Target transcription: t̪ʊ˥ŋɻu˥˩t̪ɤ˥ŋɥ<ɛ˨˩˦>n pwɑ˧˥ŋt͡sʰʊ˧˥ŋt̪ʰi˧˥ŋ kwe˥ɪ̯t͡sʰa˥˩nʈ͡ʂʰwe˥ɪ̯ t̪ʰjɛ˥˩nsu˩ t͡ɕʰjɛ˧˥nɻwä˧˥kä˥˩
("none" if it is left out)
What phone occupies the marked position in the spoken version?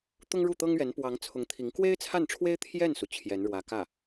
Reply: ɛ˧˥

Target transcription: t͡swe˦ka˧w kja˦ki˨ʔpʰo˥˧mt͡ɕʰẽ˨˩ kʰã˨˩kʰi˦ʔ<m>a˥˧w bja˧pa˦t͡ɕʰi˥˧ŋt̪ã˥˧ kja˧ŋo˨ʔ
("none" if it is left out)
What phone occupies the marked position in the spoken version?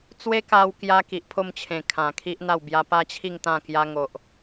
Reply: n̪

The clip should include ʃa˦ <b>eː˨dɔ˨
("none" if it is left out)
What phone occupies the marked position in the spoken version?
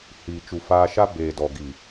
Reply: b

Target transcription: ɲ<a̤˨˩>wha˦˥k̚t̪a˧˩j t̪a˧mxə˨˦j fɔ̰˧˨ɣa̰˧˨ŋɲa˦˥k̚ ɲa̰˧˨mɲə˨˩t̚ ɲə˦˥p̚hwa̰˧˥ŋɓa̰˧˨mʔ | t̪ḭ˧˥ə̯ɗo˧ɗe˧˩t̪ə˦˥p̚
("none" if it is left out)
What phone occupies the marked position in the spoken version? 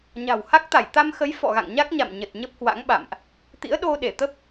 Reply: a̤˨˩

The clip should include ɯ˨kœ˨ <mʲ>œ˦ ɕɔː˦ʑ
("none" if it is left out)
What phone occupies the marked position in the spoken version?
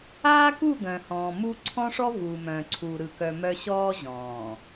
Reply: m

